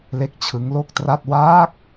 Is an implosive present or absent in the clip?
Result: absent